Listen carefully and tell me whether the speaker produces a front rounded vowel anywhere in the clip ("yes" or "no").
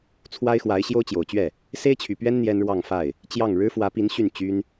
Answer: yes